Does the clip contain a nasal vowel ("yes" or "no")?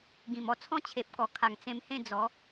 yes